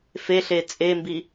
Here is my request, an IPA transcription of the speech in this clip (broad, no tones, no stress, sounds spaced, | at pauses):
f e ɬ e t͡sʼ e m b i